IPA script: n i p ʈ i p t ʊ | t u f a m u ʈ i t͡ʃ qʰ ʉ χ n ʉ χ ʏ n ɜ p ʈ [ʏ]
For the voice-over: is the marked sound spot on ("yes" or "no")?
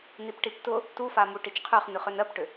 yes